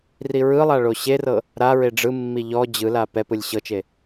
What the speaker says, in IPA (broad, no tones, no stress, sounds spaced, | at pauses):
r i ɹ ɯ lˠ a ɭ o ɕ e r ɤ | ɾ a ɹ e ɖ͡ʐ ɯ mː i ʎ ɔ d͡ʑ ɯ l a p ɛ p ɯ lʲ ɕ ɤ t͡ʃ e